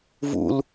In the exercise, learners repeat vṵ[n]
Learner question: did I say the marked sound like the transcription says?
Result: no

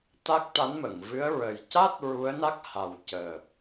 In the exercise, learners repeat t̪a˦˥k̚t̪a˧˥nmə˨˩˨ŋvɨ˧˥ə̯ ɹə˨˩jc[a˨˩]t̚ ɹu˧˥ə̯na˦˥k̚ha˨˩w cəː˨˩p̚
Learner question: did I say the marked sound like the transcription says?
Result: no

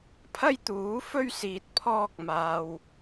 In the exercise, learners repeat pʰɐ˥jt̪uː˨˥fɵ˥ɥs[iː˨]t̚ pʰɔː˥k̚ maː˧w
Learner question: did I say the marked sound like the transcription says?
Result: yes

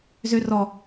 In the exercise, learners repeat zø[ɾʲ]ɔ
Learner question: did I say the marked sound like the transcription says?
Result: no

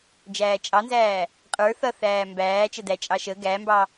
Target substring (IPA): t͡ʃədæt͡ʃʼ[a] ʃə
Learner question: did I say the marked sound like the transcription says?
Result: no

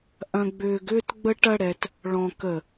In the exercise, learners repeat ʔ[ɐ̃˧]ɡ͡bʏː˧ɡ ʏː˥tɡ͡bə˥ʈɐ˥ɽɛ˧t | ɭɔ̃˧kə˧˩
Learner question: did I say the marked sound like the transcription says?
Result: yes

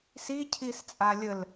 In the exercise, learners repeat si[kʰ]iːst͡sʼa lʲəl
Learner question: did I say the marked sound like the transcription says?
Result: no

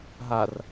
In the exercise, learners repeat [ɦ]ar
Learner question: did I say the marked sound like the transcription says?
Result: yes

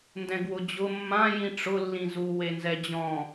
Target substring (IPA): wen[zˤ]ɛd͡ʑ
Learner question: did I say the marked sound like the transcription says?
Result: no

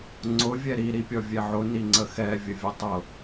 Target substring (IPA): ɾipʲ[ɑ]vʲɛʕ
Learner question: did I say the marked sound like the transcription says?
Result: no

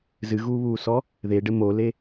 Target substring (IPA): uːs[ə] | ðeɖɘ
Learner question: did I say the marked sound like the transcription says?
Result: no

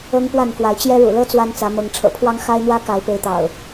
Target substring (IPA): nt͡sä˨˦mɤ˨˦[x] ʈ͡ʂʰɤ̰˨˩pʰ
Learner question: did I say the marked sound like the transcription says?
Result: no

